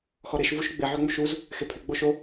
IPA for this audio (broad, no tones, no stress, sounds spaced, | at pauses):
x ɔ ɾ e ʃ v u ʃ ɡ͡b ɪ ʕ ʏ ŋ͡m u ʃ u z | x e pʰ ʏ ɡ͡b o ʃ o